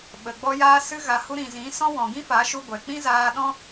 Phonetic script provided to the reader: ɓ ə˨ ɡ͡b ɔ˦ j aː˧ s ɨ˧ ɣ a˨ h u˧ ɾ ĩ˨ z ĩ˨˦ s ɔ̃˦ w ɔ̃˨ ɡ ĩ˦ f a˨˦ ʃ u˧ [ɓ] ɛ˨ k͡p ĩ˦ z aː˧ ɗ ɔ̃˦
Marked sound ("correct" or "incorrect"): incorrect